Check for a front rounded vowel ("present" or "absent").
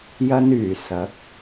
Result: present